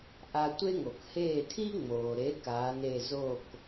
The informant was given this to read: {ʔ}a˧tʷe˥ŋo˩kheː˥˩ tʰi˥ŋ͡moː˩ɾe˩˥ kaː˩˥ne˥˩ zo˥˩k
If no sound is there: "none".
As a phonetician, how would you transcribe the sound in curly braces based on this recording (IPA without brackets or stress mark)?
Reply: ʔ